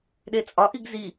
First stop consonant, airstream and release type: implosive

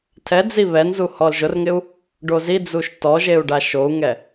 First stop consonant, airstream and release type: aspirated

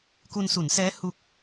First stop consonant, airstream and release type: plain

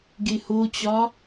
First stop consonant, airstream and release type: plain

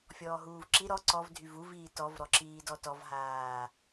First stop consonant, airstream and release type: click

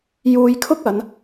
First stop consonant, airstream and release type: aspirated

